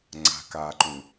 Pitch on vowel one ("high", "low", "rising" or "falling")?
low